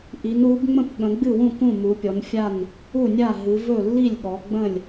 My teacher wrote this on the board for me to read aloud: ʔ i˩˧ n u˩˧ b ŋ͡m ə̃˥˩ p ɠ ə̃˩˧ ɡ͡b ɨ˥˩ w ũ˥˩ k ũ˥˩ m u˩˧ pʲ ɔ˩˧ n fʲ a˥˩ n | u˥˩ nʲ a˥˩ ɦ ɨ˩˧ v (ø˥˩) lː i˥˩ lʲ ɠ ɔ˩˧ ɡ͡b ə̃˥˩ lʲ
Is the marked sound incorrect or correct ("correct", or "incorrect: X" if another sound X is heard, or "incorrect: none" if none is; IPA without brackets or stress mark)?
incorrect: ɵ˥˩